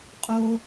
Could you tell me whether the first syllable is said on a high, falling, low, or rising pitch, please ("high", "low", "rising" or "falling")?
low